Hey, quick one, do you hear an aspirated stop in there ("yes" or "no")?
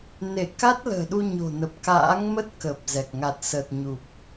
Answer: no